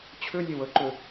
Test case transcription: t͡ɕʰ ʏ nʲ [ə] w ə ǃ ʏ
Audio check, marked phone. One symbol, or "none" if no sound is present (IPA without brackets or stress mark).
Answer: ə